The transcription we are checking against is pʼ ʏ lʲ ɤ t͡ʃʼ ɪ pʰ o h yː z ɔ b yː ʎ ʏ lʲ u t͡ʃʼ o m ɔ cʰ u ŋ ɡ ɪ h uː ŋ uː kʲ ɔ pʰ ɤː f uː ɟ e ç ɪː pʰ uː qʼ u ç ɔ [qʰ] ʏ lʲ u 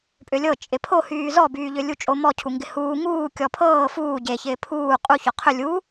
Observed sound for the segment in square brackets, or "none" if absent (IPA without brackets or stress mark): qʰ